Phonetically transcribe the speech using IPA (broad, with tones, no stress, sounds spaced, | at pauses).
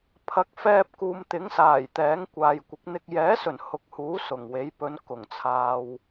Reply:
pʰ ɐ˨ k̚ f ɛː˧ p̚ k uː˨ m t̪ ɪ˨˥ ŋ s aː˨˩ j t̪ ɛː˨˥ ŋ kʷ aː˨ j kʷ ɪ˨˥ k̚ n̪ ɪ˧ k̚ j ɛː˨˥ s ɵ˨˩ n h ʊ˨˥ k̚ h uː˨˥ s ʊ˨˩ ŋ w e˨˥ j p ɵ˨˧ n k ʊ˨˩ ŋ t͡sʰ aː˨ w